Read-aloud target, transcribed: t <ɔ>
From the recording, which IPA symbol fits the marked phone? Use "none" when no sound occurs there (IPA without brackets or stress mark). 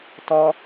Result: ɔ